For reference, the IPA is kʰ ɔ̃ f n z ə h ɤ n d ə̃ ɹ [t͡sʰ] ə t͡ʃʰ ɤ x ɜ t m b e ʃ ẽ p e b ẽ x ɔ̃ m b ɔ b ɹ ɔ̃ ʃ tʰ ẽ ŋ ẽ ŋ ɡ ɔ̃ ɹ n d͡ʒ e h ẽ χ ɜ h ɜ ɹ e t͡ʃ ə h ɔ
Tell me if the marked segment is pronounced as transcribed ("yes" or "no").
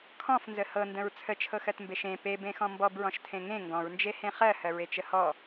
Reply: yes